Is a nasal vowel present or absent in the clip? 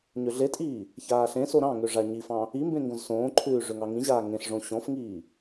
present